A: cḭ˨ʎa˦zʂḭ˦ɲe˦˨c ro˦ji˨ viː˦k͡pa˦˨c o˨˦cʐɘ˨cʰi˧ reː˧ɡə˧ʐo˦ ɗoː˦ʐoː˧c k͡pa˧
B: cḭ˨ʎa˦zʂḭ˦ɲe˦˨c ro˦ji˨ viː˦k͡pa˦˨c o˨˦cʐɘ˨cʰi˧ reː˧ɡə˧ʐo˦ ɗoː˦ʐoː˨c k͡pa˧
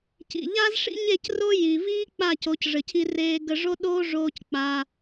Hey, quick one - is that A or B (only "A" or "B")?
A